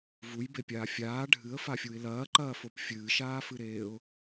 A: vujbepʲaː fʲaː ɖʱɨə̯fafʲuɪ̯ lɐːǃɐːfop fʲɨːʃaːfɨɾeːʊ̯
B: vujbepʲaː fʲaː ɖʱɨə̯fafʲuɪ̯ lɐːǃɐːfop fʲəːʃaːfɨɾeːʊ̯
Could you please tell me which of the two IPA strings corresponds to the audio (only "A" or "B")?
A